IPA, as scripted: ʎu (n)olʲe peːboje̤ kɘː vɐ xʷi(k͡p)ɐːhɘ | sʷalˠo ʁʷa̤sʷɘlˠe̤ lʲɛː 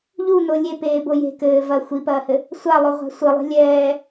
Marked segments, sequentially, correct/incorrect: correct, incorrect: p

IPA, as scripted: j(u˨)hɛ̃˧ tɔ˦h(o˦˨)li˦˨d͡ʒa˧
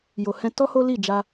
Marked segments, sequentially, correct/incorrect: incorrect: o˨, incorrect: o˦

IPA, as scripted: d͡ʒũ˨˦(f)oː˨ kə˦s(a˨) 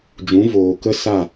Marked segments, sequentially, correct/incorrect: incorrect: v, incorrect: a˦˨

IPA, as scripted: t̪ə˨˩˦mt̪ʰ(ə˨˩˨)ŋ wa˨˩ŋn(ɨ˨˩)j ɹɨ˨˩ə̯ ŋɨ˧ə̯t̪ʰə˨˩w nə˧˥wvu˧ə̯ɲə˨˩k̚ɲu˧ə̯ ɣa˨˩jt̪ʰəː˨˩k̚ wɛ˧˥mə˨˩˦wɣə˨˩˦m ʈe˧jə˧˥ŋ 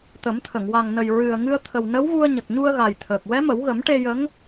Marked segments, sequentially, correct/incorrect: correct, incorrect: ə˨˩

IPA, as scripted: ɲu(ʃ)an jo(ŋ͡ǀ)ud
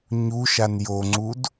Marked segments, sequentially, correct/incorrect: correct, correct

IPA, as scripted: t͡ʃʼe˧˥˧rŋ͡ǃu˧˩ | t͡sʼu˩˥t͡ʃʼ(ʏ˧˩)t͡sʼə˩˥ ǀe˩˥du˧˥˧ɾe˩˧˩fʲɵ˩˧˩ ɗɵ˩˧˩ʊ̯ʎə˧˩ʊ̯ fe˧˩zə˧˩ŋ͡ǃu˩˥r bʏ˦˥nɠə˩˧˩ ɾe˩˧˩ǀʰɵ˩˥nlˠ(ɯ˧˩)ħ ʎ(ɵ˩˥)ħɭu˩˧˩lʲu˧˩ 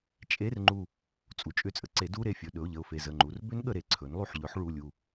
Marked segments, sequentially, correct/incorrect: correct, incorrect: u˧˩, correct

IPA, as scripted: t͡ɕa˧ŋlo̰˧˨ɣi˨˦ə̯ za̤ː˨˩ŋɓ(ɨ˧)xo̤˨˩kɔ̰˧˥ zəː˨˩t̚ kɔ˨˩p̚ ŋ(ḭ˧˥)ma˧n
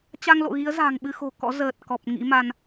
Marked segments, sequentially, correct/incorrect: correct, correct

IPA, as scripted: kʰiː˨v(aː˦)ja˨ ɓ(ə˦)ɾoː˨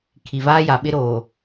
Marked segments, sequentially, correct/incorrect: correct, incorrect: ɪ˦

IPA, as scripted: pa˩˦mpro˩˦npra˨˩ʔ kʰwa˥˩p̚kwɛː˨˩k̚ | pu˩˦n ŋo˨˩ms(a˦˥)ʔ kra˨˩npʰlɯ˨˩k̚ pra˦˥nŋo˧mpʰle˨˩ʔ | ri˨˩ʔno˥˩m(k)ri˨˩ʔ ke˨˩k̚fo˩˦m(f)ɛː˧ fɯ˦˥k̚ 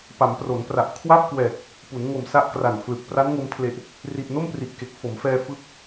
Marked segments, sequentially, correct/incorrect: correct, incorrect: p, correct

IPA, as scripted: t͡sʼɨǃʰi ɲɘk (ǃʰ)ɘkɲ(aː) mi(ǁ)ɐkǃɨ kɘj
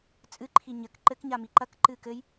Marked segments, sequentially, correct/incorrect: incorrect: ǃ, incorrect: a, incorrect: ǃ

